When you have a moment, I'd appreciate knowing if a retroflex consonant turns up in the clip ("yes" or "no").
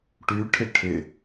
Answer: yes